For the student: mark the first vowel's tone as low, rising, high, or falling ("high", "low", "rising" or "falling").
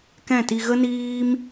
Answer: falling